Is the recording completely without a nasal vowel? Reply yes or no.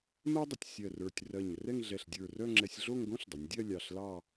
no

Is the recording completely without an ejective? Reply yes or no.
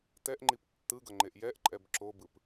no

